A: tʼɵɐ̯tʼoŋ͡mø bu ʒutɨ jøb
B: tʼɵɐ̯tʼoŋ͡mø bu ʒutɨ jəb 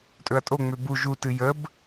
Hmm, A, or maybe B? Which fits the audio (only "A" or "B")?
B